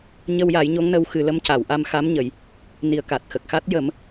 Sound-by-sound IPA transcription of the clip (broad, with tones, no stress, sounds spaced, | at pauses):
ɲ ə˧ w j a˨˩˦ j ɲ o˧˥ ŋ n ə˧˥ w x ɨ˨˩˦ l ə˧˥ m c a˨˩˨ w ʔ a˧ m x a˧˥ m ɲ ə˨˩˨ j | n i˨˩˨ ə̯ k a˨˩ t̚ x ə˨˩ k̚ x a˦˥ t̚ j ə˨˩˦ m